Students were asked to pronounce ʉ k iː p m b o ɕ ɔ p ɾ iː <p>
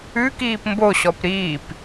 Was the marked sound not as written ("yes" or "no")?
no